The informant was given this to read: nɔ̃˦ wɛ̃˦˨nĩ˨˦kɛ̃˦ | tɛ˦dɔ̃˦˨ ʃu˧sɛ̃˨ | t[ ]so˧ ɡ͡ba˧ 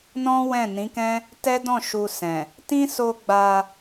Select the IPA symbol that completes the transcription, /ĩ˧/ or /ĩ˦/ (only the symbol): ĩ˦